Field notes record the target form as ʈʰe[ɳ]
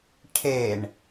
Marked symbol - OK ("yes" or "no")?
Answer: yes